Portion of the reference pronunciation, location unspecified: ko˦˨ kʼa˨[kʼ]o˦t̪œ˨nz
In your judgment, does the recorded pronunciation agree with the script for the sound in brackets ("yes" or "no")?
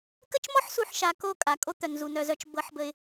yes